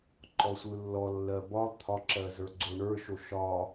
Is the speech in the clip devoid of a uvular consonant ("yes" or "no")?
yes